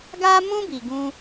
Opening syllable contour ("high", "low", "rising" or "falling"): high